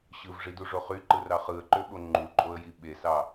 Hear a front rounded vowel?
yes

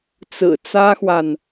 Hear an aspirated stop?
no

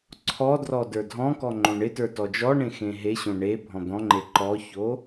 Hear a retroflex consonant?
yes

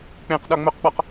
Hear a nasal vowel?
yes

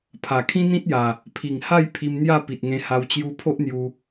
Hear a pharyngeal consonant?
no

